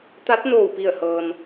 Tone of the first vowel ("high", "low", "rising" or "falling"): rising